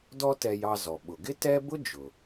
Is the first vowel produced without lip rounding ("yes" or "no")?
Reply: no